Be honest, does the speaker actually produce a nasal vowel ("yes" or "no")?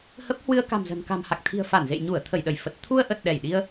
no